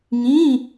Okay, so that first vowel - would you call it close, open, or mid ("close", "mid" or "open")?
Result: close